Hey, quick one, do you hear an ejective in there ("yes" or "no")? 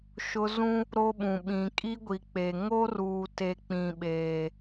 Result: yes